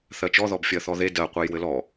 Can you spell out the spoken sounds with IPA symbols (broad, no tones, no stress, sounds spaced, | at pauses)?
θ ɜ t͡ʃ ɔ ð ɔ b fʲ ɜ θ ɔ ð e d ɜ qʷ ɜ j w ɘ l ɔ